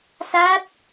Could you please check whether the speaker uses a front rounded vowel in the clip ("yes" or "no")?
no